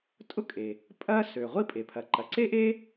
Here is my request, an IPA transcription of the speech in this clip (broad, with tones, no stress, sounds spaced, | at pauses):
tʼ ʊ˥ kʼ e˩ | pʼ ɐ˥ s ø˩ ʁʷ i˥ pʼ e˩ pʰ ɐ˩ ǃ ɐ˩ ǀ e˥ ʔ e˥